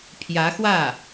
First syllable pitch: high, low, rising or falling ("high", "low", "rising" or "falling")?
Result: rising